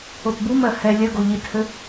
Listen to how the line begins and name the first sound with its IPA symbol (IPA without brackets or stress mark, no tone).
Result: o